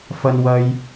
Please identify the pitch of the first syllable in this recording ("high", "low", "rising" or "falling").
high